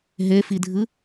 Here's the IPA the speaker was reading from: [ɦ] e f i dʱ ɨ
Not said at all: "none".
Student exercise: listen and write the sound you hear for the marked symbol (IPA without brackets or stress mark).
ɦ